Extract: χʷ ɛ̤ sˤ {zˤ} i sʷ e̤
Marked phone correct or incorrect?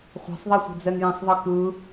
incorrect